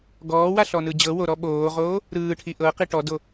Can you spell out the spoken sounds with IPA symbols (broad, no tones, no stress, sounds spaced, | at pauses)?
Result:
ɡ ɔː w a ɬ ɔ n ɯ d͡ʑ ɤ w o ɾ ɔ ɓ oː ʁ oː | ɾ ɯː ʈʰ i ʔ ɤ q i ʈ ɔ d o